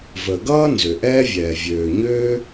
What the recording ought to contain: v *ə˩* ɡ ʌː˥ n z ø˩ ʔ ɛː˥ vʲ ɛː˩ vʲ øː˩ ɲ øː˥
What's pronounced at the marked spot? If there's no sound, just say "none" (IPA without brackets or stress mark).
ə˩